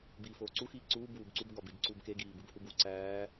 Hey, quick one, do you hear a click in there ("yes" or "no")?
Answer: yes